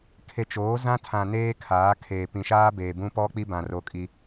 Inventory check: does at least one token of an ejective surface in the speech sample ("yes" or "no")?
yes